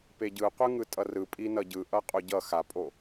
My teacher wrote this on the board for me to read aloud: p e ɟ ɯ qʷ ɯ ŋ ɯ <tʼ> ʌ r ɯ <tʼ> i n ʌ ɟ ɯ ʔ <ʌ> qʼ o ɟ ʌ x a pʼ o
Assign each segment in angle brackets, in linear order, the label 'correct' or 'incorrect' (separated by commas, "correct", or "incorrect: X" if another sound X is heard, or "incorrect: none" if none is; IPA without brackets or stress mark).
correct, incorrect: pʼ, correct